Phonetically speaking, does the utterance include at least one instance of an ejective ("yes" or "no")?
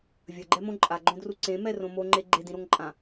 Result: yes